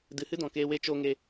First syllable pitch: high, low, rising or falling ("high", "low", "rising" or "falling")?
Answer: low